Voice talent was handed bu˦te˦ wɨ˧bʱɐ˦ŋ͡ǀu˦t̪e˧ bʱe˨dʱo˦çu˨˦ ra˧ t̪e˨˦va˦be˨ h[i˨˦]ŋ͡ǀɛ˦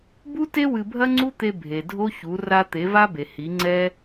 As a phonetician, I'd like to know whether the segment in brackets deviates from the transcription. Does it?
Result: no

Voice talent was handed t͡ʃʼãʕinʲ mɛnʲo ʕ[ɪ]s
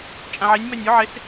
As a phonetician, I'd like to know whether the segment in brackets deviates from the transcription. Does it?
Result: no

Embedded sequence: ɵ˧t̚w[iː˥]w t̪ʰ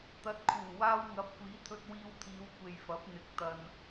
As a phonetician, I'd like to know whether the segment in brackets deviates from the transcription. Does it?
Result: yes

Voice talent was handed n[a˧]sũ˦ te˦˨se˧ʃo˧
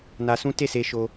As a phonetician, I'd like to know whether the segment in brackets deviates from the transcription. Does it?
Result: no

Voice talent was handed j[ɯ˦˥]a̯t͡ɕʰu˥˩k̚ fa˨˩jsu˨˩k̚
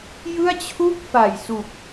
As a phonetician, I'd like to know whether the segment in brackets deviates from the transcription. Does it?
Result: yes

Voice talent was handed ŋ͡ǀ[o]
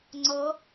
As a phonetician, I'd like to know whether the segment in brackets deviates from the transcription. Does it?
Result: yes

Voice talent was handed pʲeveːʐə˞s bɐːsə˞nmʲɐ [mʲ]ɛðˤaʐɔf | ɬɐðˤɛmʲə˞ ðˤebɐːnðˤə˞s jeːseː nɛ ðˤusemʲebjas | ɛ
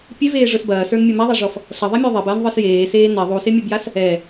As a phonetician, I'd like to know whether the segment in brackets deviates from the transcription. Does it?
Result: yes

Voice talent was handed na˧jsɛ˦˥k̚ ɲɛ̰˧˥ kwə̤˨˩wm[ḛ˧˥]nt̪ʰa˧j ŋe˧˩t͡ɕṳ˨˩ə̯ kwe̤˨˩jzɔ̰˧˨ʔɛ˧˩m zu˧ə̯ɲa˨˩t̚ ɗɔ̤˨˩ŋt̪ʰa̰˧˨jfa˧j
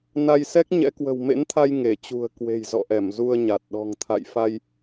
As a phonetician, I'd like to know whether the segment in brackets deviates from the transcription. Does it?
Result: no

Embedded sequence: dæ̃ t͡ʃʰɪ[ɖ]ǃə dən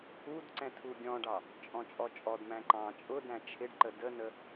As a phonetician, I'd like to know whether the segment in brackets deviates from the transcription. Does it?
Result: no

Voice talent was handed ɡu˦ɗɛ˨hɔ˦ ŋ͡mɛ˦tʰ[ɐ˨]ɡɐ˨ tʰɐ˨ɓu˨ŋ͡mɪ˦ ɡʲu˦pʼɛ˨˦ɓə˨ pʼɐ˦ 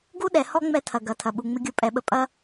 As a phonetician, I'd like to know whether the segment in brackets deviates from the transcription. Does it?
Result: no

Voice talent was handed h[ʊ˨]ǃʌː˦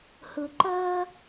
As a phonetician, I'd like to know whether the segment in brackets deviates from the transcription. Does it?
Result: no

